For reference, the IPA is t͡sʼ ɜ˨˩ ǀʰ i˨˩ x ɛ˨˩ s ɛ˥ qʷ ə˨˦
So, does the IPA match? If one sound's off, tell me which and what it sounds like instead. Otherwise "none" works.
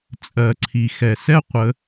none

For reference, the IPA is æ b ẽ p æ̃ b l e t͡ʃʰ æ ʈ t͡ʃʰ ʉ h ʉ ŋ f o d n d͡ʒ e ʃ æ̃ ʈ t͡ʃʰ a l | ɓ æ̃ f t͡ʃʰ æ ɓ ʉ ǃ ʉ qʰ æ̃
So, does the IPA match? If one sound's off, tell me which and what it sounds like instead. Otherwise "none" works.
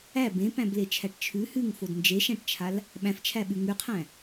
ǃ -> ŋ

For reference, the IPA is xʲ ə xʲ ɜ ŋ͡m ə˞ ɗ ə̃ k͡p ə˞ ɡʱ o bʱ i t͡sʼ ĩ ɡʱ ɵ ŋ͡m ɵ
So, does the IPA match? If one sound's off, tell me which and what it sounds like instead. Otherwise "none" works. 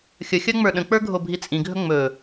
none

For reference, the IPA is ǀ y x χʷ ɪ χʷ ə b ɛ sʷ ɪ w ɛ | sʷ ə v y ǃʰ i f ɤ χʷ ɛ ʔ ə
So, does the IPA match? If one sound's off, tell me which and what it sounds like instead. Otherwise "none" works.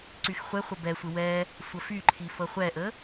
v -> f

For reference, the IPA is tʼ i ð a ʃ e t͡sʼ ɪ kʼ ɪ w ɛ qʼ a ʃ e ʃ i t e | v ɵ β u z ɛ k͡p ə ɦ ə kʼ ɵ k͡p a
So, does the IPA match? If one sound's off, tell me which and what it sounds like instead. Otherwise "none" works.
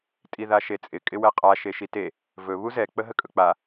none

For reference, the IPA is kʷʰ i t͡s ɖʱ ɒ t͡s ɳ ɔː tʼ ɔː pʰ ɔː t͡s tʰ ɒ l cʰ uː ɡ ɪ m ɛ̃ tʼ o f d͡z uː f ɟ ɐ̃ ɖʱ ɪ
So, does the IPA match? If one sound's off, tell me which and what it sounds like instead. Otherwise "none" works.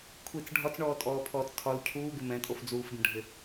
none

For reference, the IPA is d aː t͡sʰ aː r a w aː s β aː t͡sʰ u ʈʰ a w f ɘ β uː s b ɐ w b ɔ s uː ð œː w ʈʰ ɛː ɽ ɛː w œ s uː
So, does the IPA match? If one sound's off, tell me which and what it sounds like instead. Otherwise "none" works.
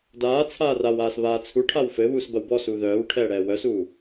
none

